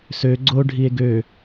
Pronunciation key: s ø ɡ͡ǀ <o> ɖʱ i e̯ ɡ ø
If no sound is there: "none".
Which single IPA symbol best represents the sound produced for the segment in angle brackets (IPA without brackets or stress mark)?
o